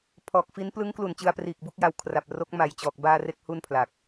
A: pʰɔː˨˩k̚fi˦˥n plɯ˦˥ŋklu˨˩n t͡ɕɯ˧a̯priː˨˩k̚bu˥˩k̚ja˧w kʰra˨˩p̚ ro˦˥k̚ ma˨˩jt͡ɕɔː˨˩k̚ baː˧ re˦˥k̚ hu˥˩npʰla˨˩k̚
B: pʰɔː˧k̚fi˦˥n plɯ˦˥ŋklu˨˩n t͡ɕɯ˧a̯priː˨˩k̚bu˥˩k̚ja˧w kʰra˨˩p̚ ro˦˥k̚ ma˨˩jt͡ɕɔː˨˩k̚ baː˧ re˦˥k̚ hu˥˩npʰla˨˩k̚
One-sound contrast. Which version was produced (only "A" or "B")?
A